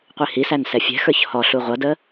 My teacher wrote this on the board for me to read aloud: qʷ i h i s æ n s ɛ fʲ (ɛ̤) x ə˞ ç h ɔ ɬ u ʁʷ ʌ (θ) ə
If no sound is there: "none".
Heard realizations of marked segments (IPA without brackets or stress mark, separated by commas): ɛ̤, d